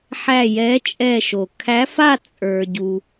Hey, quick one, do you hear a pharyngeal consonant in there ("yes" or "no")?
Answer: yes